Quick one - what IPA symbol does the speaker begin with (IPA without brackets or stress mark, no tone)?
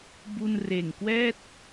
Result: b